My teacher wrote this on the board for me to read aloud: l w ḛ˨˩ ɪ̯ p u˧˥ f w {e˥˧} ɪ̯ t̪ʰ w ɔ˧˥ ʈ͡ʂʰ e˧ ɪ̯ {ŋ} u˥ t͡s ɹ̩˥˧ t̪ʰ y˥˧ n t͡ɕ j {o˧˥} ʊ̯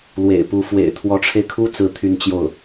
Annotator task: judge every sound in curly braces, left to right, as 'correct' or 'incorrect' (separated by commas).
incorrect, incorrect, incorrect